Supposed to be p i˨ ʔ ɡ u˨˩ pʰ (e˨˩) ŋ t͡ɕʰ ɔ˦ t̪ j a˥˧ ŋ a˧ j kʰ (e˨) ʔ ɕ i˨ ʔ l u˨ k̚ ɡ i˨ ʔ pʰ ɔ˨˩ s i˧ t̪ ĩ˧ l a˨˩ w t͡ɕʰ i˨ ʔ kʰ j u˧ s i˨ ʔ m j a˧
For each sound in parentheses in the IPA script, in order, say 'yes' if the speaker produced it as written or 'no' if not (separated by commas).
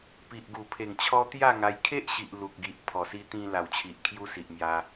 yes, no